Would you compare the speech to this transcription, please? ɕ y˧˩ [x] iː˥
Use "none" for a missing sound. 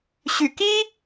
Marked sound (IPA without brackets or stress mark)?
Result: k